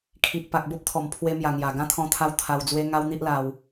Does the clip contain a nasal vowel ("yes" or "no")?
yes